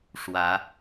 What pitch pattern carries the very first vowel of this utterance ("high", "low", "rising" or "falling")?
rising